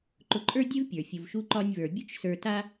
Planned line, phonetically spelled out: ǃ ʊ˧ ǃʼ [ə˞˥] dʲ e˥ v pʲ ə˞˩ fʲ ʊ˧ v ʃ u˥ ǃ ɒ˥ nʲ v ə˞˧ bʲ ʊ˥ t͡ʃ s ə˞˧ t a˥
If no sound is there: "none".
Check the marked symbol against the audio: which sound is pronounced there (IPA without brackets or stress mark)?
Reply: ə˞˥